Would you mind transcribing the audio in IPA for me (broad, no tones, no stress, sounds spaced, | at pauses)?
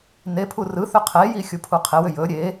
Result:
n e pʰ u r ɯ θ ʏ qʰ e j i xʲ u pʰ u qʰ e w ʏ j ɵ ɾʲ e